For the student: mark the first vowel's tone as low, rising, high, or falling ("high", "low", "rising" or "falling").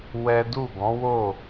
high